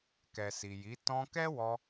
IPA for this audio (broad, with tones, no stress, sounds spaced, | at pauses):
k ɛ˨ s i˨ j i˨˦ t ɔ̃˧ k ɛ˦ w ɔ˧